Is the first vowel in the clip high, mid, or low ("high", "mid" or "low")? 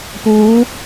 high